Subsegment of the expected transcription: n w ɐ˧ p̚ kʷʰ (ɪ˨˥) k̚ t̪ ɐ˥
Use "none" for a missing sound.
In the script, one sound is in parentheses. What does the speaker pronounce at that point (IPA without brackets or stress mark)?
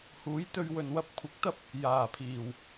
ɪ˨